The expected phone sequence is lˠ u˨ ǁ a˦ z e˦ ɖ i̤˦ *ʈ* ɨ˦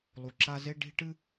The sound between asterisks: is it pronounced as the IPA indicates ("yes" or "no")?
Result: yes